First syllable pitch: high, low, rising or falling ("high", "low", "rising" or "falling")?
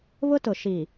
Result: high